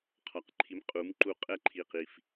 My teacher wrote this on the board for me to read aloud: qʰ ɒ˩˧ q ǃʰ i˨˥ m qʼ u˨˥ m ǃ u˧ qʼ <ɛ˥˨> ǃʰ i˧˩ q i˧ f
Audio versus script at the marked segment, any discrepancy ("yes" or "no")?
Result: no